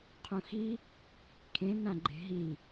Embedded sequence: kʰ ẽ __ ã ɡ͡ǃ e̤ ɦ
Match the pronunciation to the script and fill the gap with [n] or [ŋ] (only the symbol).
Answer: n